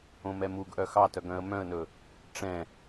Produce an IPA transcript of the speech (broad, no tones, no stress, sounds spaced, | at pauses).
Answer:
õ m ɛ m u ɡ ʔ œ x ɑ t œ ɡ œ̃ ə̯ m œ̃ ə̯ n ɵ | ʈ͡ʂ ɛ̃